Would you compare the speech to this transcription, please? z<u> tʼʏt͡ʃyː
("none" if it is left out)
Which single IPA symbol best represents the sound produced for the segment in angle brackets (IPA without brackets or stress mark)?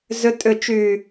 ʏ